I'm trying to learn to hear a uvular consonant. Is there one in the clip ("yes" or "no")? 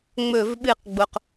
yes